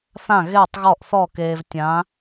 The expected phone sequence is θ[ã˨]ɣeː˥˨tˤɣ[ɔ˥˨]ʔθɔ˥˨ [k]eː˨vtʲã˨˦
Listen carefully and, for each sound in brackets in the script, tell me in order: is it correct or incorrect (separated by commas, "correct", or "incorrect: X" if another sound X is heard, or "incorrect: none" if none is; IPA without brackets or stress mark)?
incorrect: ã˥˨, correct, correct